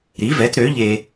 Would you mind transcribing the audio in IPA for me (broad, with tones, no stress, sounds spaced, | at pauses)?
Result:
ɾ i˨˦ v ɛ˨˦ t ɾ ø˨˦ ʎ e˧